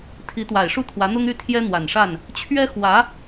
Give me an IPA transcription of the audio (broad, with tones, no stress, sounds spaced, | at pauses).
t̪ʰ i˧˥ t̪ w a˨˩ ɪ̯ ʂ u˥˩ t̪ʰ w ä˧˥ n̪ ʊ˥ ŋ y˥ t̪ʰ j ɛ˥ n̪ w a˨˩ n ʂ a˥˩ n | t͡ɕʰ ɥ ɛ˥ x w ä˧˥